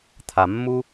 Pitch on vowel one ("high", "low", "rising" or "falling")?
low